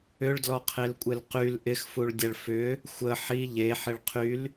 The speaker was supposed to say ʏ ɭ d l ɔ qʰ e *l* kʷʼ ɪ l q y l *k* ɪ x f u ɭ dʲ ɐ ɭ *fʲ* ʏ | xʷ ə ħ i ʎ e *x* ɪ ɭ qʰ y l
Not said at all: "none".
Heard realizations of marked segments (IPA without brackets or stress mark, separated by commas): l, ʔ, f, ħ